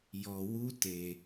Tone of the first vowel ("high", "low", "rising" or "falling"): low